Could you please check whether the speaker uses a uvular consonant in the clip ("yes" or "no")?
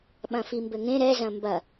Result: no